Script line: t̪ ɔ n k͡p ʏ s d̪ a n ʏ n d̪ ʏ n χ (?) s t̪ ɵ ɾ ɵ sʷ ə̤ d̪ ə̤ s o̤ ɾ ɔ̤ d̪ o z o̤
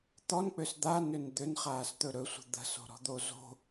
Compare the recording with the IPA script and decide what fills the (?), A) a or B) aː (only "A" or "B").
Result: B